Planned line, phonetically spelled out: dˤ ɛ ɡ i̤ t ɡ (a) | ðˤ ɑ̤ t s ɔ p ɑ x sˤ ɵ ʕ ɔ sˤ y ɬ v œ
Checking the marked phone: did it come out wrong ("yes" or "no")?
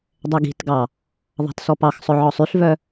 yes